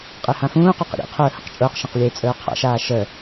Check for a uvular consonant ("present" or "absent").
present